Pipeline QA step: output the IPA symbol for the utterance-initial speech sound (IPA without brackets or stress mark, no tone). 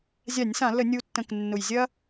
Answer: zʲ